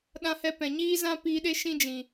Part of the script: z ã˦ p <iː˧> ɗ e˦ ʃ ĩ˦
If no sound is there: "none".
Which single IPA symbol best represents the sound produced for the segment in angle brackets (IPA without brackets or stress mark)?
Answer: iː˧